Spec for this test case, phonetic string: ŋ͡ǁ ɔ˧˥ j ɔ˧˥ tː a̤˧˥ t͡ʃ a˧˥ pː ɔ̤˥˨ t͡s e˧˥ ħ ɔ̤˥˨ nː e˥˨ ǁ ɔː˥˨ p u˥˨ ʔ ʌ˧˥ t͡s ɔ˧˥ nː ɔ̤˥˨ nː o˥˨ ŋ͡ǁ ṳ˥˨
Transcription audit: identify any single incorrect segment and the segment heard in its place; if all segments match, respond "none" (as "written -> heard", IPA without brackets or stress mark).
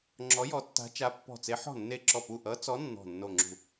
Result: ɔː˥˨ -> ɔ˥˨